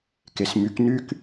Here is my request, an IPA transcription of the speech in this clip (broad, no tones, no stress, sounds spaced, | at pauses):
k e s m y k n y k